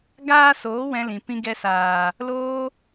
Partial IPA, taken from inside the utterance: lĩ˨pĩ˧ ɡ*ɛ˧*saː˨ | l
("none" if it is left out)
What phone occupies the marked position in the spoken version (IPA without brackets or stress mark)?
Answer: ɛ˧